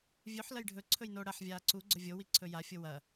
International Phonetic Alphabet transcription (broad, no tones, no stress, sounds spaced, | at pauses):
vʲ ʉ ħ l ɐ j ɖʱ ɵ ǀʰ ɵ j n o ɽ ɐ ħ vʲ aː ǀ u ɡ͡ǀ ɵ vʲ o w i ǀʰ ɵ j a fʲ o w ɐ